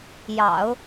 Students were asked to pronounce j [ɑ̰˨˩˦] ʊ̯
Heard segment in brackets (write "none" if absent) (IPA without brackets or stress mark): ɑ̰˨˩˦